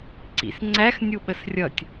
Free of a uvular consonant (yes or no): yes